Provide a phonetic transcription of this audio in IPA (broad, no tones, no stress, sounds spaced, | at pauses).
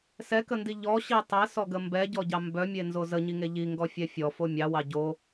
s ɛ k ə n d i ʎ ɔ ɕ i tˤ e s ɔ ɡ ə m b ɛ ɟ ɔ ɟ ɑ m b œ mʲ e n z o z ə ɲ i ŋ e ʎ i ŋ ɡ ɔ fʲ ɛ fʲ ɔ f o mʲ ɑ w ɑ ɟ o